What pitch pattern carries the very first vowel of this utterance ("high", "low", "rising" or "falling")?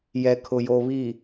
low